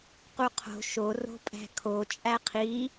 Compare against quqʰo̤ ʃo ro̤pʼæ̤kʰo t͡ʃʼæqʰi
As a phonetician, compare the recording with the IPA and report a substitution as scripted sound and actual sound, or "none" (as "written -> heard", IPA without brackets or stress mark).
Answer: none